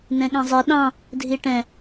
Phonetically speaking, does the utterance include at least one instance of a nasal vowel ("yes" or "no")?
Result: yes